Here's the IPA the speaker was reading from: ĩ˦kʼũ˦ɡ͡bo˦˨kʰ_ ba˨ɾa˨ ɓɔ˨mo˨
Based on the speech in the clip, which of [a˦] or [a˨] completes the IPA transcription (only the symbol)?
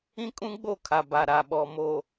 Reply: a˨